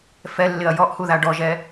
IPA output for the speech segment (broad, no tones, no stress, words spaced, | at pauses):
fɛlːɪɐ̯ jɔʔhuða ɖɔʒɛ